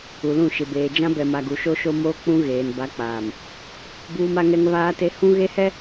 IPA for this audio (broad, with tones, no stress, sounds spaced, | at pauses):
u˨ l ũ˦˨ ʃ ɪ˨ b eː˨ d͡ʒ ã˦ b ɛ˨ m a˨ ɡ u˨ ʃ o˦ ʃ o˦ m oː˦ k͡p ũ˦ ɣ eː˨ n b a˨˦ k͡p aː˨ m | b uː˦ m a˦ ŋ ɛ˦ ŋ β aː˦ t e˦ h ũ˦ ɣ e˦ h ɛ˦